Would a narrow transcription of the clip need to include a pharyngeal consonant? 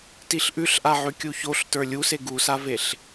yes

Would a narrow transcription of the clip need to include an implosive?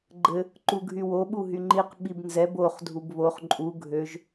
yes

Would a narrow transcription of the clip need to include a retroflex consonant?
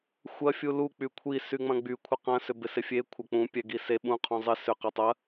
no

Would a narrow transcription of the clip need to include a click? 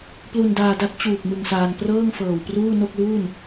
no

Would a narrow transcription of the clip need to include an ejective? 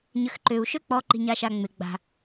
no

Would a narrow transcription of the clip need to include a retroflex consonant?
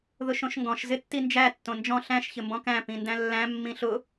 no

